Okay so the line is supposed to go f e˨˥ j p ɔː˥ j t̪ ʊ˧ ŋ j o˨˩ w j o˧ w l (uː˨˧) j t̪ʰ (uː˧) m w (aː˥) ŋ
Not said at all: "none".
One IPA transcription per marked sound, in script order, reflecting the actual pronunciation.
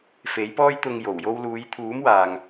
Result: uː˨˧, uː˨˥, aː˨

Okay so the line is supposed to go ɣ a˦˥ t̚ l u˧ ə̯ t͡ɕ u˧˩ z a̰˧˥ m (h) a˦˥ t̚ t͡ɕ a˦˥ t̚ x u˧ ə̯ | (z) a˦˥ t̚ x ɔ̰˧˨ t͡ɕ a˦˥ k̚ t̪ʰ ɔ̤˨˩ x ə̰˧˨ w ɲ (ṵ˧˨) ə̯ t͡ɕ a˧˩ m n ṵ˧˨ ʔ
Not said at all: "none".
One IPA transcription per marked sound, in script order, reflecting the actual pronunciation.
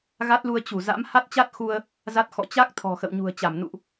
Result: h, z, ṳ˨˩

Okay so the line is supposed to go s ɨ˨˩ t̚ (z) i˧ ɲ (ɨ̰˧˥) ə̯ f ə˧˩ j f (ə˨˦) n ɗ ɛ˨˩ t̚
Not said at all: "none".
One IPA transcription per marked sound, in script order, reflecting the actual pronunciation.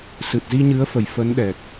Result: z, ɨ˨˦, ə˨˦

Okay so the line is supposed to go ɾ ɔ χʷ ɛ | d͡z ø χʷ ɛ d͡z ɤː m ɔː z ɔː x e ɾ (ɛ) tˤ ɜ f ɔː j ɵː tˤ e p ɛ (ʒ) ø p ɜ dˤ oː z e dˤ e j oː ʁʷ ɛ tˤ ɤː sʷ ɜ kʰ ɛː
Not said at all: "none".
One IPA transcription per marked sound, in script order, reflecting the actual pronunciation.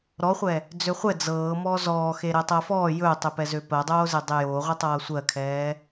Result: ɛ, z

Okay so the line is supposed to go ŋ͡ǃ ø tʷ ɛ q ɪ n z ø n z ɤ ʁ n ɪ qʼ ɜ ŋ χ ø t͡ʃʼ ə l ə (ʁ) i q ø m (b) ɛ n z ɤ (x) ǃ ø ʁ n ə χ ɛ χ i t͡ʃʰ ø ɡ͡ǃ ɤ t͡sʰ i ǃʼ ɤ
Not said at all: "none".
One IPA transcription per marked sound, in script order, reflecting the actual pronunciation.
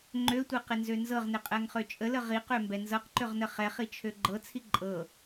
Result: ʁ, b, q

